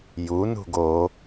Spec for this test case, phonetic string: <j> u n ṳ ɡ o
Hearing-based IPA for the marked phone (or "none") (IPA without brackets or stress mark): j